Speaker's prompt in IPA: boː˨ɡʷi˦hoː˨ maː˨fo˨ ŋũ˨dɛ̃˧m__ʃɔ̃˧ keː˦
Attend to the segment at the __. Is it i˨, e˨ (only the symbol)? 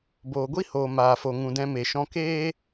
e˨